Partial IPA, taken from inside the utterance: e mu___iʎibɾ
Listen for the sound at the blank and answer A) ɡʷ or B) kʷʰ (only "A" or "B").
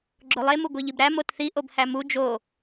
A